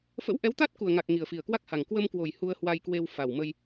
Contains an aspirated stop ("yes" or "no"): no